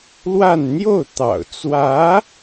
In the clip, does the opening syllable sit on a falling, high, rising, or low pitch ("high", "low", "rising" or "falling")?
falling